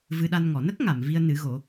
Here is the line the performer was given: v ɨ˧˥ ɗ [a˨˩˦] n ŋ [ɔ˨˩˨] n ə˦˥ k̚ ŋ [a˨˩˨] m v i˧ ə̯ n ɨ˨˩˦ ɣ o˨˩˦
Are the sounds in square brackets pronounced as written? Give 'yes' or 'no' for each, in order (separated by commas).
no, yes, yes